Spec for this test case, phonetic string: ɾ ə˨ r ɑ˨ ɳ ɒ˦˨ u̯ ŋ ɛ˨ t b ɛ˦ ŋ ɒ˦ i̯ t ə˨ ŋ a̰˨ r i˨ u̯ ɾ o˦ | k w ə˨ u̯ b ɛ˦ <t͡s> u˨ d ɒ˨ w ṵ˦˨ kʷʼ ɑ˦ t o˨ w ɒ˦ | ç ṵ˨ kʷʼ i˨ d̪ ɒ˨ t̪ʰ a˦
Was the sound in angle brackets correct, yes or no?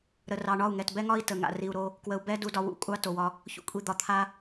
no